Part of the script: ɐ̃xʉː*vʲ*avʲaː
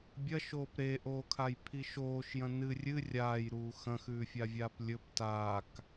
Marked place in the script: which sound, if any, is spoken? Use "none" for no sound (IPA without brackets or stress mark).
fʲ